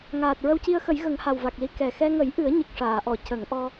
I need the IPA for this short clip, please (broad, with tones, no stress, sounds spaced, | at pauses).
ŋ aː˨˩ t̚ ɹ ə˧ w c i˧ ə̯ x ə˨˩˦ j ɣ ə˨˩˦ ŋ h a˨˩ w v a˨˩ k̚ l i˧˥ k ɛ˨˩ x ɛ˧ ŋ ə˨˩˦ j ʔ ɨ˨˩˦ ə̯ ɲ ɨ˨˩ k̚ ʂ aː˨˩˨ ʔ ɔ˨˩˨ c ə˨˩˦ ŋ ʔ ɔ˧